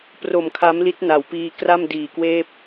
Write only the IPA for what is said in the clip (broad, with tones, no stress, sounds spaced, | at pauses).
p r o˨˩ m kʰ a˦˥ m l i˦˥ t̚ n a˩˦ w p iː˧ k r a˥˩ m d iː˨˩ k w eː˥˩ p̚